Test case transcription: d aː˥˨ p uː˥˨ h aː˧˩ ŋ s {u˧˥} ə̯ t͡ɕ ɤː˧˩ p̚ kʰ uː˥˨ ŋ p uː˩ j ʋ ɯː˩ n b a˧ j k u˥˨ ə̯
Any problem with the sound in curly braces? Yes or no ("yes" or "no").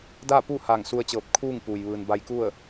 yes